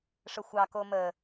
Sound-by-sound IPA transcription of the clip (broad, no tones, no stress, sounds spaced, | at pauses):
ʂ ə xʷ ɑ k o m ə